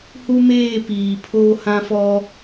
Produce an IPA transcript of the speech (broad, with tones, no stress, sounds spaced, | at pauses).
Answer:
h u˦ m eː˦˨ p iː˨ pʰ oː˦ h ã˦ f ɔ˦